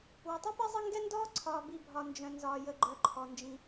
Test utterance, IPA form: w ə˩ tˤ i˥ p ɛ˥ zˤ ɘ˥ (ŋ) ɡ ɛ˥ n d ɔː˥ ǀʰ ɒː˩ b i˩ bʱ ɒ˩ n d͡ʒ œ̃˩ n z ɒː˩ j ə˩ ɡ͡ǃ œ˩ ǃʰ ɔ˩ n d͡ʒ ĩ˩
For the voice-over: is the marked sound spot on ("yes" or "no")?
yes